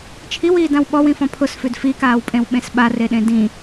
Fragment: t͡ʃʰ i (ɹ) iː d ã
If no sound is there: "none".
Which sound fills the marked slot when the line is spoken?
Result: w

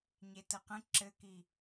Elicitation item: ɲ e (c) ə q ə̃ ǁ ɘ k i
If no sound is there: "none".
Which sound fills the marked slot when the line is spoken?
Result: t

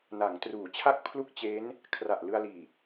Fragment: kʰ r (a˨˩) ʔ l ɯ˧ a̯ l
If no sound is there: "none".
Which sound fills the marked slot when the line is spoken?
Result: a˨˩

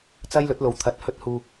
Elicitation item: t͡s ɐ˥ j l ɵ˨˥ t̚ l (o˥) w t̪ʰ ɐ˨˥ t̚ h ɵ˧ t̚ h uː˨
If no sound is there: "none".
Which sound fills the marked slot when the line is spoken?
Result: o˨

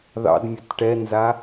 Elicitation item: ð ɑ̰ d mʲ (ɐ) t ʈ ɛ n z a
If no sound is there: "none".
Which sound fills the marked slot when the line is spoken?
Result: ɐ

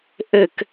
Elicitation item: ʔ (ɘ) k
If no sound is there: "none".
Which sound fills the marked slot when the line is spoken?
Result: ɘ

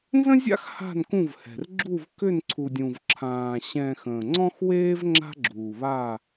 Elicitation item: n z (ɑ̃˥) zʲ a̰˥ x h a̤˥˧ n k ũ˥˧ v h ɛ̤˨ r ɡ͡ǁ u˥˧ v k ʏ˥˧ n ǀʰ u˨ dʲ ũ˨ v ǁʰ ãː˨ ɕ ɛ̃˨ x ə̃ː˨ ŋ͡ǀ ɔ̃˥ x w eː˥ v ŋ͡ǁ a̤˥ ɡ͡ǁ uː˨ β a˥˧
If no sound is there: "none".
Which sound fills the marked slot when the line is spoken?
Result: ə̃˥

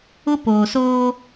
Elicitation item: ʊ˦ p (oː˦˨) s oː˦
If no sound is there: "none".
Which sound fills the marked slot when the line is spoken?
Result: oː˨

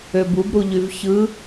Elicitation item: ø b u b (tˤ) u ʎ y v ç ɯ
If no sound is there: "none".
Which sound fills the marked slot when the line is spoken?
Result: ɾ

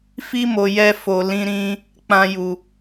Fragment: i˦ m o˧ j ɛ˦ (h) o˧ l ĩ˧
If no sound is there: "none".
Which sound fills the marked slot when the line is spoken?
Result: f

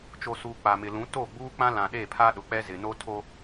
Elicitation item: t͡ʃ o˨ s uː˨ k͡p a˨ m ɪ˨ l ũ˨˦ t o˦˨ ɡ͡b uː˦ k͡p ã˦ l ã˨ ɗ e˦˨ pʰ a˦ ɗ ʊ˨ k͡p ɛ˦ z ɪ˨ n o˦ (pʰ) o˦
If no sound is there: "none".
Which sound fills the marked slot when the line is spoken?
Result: tʰ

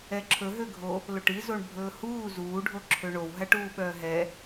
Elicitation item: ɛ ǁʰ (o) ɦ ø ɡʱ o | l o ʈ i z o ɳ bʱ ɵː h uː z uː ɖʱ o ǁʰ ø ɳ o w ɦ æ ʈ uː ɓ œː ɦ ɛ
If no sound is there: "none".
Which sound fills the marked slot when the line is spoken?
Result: ɵ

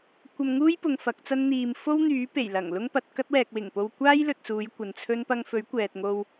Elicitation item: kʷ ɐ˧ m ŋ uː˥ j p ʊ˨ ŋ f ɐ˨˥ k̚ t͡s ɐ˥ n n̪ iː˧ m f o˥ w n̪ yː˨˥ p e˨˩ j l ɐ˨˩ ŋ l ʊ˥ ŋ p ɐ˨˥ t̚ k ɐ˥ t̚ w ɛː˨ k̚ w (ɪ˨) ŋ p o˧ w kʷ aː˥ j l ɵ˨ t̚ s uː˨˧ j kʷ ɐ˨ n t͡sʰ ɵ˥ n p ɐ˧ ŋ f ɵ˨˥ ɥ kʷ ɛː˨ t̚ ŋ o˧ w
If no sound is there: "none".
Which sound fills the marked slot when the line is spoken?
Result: ɪ˨˩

